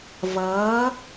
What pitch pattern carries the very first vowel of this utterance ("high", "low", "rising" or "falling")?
rising